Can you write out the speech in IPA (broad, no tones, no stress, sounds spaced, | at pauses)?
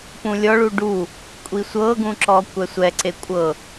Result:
p ũ lʲ ɔ ɭ u ɖ u | kʷʼ i sʷ ɤ ɡ ũ ǁ ɔ kʷ ɛ sʷ ɛ ǀ e kʷʼ ɤ